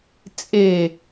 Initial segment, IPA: t͡sʼ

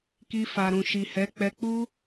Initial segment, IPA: k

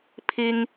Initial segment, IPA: pʰ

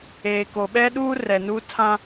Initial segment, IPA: eː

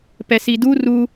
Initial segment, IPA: p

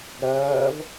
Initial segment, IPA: ɾ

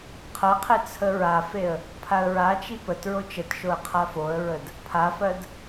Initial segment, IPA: qʰ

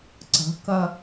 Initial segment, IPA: ǀ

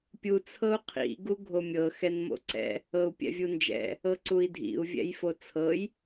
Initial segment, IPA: pʲ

